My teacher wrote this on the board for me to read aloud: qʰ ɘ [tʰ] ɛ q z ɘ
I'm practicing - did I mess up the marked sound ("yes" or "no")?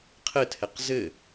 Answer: no